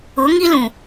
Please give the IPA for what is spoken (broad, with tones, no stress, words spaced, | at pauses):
ʊ˨˦ŋi˦lũ˨